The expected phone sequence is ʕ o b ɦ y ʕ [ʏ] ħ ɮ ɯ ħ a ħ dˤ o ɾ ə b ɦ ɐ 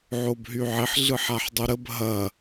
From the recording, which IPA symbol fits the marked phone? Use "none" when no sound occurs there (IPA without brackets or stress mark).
ɪ